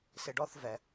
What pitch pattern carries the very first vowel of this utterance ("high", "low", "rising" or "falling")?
low